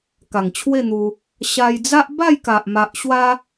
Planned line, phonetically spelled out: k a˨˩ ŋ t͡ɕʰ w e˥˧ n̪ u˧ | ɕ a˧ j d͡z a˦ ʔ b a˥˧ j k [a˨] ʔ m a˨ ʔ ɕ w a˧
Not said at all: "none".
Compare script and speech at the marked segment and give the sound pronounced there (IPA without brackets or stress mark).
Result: a˨